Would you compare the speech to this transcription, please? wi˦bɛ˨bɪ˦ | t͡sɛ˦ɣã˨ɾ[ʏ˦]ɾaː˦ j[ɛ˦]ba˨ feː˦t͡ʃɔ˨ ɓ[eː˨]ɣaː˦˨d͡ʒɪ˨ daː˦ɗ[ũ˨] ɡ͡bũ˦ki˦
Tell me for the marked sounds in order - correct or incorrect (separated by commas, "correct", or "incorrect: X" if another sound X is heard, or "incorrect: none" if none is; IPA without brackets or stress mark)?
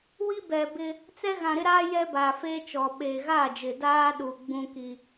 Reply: incorrect: ɪ˦, correct, correct, incorrect: u˨